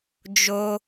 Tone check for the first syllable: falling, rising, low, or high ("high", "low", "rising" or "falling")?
high